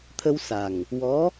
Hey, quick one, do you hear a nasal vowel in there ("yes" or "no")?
no